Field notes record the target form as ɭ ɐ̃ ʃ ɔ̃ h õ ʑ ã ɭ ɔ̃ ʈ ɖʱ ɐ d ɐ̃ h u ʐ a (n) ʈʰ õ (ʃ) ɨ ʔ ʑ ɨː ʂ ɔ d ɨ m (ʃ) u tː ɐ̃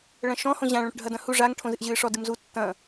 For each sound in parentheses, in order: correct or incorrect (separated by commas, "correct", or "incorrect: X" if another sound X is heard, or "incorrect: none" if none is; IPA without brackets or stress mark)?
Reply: incorrect: ŋ, incorrect: z, incorrect: z